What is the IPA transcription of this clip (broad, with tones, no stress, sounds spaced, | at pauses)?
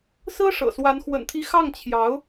s ɹ̩˥ ʂ ɤ̰˨˩ s w a˧˥ n x w ə̰˨˩ n t̪ʰ i˧˥ x ɑ˥˩ ŋ t͡ɕʰ j ɑ˧˥ ʊ̯